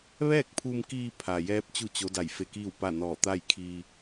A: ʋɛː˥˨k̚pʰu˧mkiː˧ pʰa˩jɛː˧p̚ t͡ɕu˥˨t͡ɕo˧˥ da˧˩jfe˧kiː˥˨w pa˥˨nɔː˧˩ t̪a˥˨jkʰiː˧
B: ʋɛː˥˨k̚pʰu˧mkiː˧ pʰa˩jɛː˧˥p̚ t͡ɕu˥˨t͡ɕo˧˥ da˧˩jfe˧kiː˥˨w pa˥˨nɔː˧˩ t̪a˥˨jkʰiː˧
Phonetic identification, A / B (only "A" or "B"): B